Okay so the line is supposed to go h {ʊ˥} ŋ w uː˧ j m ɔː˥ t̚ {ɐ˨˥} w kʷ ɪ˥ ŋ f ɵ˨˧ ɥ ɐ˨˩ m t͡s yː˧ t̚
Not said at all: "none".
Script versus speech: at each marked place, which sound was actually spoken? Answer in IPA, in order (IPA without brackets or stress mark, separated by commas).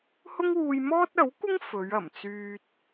ʊ˥, ɐ˨˥